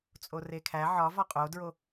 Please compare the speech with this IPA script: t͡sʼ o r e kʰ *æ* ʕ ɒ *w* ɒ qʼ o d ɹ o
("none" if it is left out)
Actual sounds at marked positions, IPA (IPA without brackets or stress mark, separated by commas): æ, v